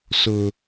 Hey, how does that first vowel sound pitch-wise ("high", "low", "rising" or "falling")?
high